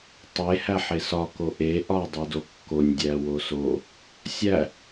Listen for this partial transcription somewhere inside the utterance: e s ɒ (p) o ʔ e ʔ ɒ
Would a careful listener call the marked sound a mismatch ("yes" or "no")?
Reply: yes